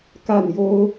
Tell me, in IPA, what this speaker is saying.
k a˥˩ n j o˥ ʊ̯

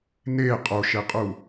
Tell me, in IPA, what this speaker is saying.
n e qʼ o ʃ e qʼ u

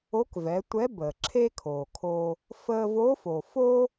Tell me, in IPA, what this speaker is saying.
o˧˥ k v ɛ˩˧ tʷ ɛ˧˥ b əː˩ ǁʰ e˥ kʰ oː˩ kʰ o˧ | f əː˧ v o˧˥ f o˩ f o˥

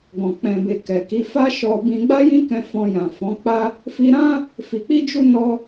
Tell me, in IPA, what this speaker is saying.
ɡ ɔ̃˨ k͡p ɛ̃˨ b e˨ k ɛ˨ k i˨˦ f a˦ ʃ ɔ˧ b ĩ˧ ɡ͡b a˦ j ĩ˦ k ɛ̃˧ f ɔ̃˧ j ã˨ f ɔ̃˨˦ k͡p a˦ | f i˦ ɾ ã˦ | f i˧ k͡p i˦ d͡ʒ u˦ n ɔ˧

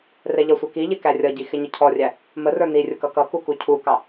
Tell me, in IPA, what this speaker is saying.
r ɛ ʎ ʌ sʷ ə˞ k i ʎ ɪ k æ rʲ ʌ ɟ i x ɪ ɲ ə cʰ ɔ rʲ æ | m ə r ə˞ n i rʲ ʊ k ʌ k ʌ k u k u cʰ u k ɑ

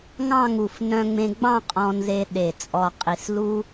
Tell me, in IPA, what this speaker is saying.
ŋ ɑ̃˥˧ ŋ u˧˩ f n œ̃˧ ŋ͡m ẽ˧ ɡ͡b ɑ̃˥˧ qʼ ɔ̃˧ n z e˧ ɗ e˧˩ t͡sʼ ɔ˧ qʼ i˧ s l u˥

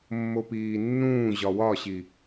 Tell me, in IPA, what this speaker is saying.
mː o p iː nː ũː ʑ ɒ w ɒ ɕ i

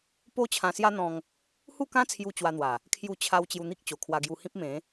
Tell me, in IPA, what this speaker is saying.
p o˦ t͡ɕʰ ã˧ s j a˦ n̪ ɔ̃˧ ŋ | h u˥˧ k ã˦ t͡sʰ j u˧ t͡ɕ w a˧ n̪ w a˨˩ | kʰ j u˥˧ t͡ɕʰ a˦ w t͡ɕ j u˧ n̪ i˦ k̚ t͡ɕ o˨˩ kʰ w a˧ ɡ j u˧ h ĩ˦ p̚ m ẽ˨˦

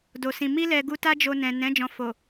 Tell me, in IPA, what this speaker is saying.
d o˨ s ĩ˨ m i˧ l ɛ˨ ɡ u˧ t a˦ d͡ʒ o˧ n ɛ̃˨ n ɛ̃˨˦ d͡ʒ ɔ̃˧ f o˨

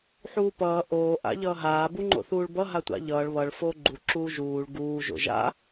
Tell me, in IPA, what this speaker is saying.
ħ uː p ʌː ʔ oː ʔ a̰ ʎ ʌː ɦ aː b u ŋ͡ǃ o̰ θ uː ɭ b ʌ ɦ a tʷ a̰ ʎ ʌː ɭ β ʌ ɭ f oː ɡ͡ǃ u ǁ uː ʒ uː ɭ ɡ uː ʒ o̰ ʒ a̰

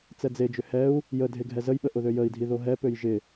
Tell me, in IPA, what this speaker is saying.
t͡s ɛ d͡z e d͡ʒ ʏ h ɛ u̯ | j ə dʱ e ɡʱ ɛ z ə j ɓ ə ʔ ʊ ð ø j ə i̯ dʱ i ð o ɦ ɛ p ø j ʒ ɪ

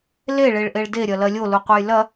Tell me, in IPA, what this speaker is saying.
l e ɭ e ɭ ʔ e ɭ d e ɾʲ ɐ l ɐ lʲ o l u qʷ ɐ j l ɐ

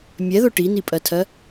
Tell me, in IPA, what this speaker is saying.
mʲ ɛ ð ʊ ʈ i n i pʼ ɜ tʰ ɜ

